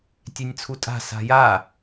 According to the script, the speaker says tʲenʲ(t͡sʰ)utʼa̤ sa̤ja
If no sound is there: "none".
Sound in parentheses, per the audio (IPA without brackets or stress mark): t͡sʰ